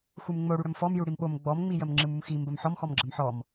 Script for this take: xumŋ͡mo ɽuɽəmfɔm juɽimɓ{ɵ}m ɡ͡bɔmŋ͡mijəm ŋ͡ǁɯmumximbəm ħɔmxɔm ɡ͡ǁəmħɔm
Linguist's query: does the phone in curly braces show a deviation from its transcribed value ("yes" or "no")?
yes